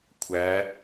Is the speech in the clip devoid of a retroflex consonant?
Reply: yes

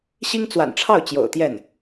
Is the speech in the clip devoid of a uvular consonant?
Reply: yes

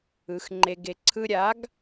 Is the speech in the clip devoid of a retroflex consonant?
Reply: yes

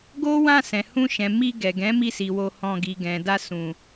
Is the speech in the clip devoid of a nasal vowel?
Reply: no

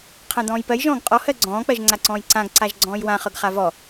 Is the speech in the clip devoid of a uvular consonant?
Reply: no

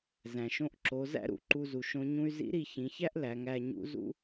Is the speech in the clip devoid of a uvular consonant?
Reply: yes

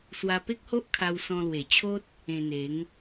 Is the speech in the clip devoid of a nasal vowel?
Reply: no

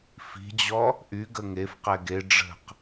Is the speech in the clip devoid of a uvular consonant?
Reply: no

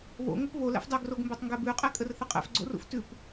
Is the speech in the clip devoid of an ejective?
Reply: no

